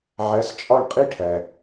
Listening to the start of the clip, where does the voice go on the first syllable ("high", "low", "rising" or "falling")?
rising